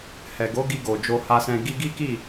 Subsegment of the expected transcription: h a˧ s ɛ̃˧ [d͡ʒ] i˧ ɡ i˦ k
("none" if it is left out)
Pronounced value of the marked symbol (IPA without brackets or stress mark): ɡ